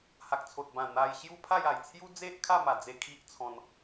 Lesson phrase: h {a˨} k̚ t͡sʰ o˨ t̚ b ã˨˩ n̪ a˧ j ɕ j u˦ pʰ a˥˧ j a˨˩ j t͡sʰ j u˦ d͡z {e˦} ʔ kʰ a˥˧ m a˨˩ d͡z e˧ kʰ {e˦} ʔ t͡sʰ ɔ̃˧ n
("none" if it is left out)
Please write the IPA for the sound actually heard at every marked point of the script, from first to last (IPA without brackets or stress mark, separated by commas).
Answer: a˨, e˦, i˦